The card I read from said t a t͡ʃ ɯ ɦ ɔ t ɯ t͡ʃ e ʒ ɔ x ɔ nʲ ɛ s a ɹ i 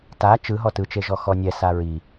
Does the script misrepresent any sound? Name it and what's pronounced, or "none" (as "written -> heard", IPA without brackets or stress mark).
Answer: none